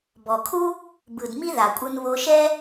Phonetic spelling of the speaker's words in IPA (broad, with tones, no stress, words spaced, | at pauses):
bɔ˩kʰu˥ | bɯ˩dmi˥ ða˩kʷʼɯ˧n βo˧ʃɛ˥